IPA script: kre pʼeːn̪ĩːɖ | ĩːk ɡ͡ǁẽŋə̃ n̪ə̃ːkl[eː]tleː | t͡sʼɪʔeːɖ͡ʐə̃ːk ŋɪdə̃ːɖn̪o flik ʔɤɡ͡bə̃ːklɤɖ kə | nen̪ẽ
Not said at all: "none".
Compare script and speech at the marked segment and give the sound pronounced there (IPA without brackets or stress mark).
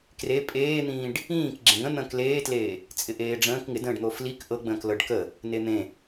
eː